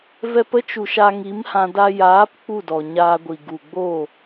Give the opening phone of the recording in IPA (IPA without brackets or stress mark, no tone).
v